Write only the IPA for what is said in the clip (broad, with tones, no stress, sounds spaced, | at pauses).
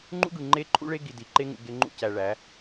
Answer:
ŋ͡ǃ ṵ˦ ɡ ɯ˨ ŋ͡ǃ e˦ ǃʰ ṵ˦ ɭ e˦ ɡ i˨ d i˨ ǃ e˦ ŋ ṵ˨ ɡ e˦ ŋ͡ǃ ṵ˦ c æ˨ ɭ æ˨˦